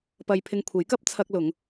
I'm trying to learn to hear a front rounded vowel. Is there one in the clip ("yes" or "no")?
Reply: no